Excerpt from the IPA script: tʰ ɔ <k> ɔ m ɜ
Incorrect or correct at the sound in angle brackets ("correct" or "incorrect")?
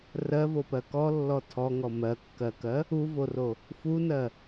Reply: incorrect